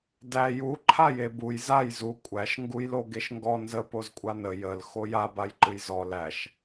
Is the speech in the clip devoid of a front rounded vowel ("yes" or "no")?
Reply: yes